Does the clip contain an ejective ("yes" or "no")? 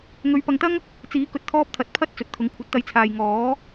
no